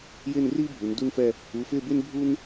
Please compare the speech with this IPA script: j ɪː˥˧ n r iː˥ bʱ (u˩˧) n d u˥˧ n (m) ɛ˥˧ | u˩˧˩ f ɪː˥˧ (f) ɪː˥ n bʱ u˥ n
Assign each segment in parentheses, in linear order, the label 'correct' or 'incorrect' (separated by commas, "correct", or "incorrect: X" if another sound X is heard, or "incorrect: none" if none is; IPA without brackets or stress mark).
correct, incorrect: f, incorrect: b